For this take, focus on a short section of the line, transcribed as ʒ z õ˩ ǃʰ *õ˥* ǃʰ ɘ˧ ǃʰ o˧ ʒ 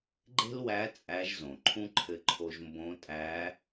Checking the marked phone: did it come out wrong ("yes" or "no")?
yes